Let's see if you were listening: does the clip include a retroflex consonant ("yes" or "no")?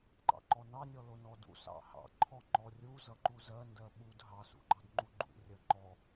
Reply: no